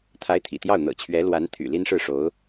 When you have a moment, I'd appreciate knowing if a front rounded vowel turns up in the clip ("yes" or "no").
yes